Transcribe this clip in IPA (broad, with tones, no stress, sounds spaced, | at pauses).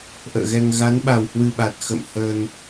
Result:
ʔ ə̰ː˧˨ ɣ ɛ˧ ŋ ɣ a˨˦ n ɓ a˨˩ w h w ɨ˧ ɓ a˨˩ t̚ x ə̰˧˨ m h ə˧ n